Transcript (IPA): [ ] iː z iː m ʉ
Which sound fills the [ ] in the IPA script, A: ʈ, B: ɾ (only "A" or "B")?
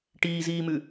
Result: A